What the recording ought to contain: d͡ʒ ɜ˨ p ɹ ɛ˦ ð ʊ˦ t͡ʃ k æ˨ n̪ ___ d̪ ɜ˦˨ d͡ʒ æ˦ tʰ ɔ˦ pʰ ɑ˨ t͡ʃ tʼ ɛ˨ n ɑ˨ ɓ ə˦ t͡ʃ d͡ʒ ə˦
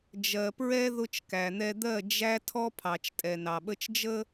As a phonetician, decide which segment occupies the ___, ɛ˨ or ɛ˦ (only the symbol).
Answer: ɛ˦